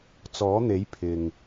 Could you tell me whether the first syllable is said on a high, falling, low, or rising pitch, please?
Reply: rising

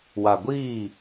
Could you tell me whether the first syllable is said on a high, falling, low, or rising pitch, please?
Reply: low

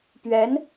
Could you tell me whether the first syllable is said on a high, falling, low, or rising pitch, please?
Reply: rising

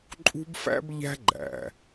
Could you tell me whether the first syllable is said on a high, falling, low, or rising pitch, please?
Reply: high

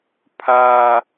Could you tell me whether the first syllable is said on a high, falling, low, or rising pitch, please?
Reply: high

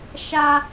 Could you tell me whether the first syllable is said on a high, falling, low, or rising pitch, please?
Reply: high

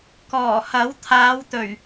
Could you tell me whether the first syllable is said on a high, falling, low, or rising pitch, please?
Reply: low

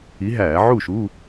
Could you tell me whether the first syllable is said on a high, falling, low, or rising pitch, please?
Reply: rising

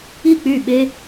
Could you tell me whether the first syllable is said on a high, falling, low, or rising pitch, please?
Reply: falling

